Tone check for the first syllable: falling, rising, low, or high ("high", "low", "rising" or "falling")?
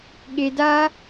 low